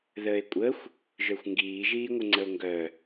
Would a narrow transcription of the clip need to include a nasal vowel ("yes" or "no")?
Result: no